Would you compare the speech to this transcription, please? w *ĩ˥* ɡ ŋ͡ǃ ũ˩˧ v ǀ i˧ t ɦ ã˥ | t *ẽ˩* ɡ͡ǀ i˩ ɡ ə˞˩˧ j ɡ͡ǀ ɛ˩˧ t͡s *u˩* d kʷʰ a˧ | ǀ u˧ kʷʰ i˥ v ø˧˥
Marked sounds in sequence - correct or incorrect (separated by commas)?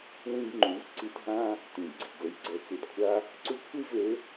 incorrect, incorrect, correct